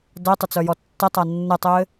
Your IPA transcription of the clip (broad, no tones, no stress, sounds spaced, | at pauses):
d ɜ tˤ ə t͡s œ j ɔ tː ə tˤ a nː ɪ tˤ ɪː